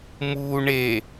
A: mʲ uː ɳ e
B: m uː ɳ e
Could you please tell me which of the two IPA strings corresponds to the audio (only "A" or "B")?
B